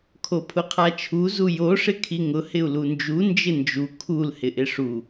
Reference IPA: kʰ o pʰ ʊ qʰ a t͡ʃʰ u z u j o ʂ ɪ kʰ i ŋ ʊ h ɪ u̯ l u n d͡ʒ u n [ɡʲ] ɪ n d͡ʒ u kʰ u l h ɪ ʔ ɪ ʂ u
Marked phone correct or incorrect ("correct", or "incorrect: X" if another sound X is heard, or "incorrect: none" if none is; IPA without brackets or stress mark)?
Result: incorrect: d͡ʒ